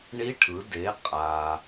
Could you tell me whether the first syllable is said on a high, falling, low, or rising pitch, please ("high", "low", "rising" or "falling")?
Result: rising